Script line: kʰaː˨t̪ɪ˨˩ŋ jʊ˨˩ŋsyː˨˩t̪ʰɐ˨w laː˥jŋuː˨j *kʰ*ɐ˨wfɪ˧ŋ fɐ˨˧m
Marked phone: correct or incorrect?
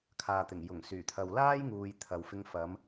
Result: incorrect: t̪ʰ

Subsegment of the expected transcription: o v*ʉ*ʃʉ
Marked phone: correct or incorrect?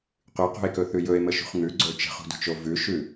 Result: correct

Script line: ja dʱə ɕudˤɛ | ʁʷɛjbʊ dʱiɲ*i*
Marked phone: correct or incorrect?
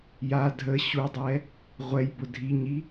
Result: correct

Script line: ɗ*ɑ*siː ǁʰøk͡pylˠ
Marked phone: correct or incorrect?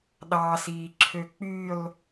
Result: correct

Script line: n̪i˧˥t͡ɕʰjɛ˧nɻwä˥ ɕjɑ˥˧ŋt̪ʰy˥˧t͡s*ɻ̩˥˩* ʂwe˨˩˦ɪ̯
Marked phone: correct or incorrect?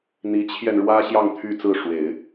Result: incorrect: ɹ̩˥˩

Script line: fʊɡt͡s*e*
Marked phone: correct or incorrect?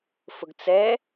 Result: incorrect: ɛ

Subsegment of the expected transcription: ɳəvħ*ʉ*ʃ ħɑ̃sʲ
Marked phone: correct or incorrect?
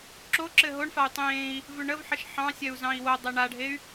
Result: incorrect: ə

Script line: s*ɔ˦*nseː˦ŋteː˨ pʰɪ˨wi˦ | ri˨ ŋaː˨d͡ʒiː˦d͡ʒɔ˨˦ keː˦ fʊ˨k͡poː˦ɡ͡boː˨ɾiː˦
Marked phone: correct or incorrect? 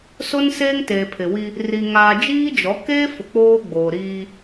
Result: incorrect: o˦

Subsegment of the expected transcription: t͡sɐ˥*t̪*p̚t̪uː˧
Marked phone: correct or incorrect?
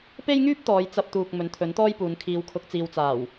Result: incorrect: none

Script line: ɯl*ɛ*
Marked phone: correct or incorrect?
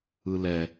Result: correct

